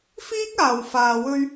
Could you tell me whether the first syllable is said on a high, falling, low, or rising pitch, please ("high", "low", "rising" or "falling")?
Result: high